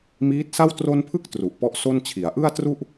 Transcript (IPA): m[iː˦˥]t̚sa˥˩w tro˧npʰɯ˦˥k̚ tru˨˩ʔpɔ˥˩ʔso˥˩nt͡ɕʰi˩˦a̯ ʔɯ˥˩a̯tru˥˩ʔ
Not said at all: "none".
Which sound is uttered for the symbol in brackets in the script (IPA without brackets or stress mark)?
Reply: iː˦˥